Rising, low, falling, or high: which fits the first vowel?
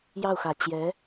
falling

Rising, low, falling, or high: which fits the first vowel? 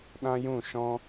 high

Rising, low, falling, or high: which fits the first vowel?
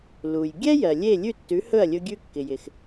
low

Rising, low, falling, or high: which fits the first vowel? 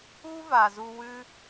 high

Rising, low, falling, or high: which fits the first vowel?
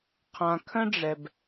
low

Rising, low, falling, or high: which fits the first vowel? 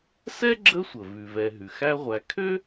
high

